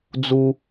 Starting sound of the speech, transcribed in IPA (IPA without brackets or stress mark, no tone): d͡z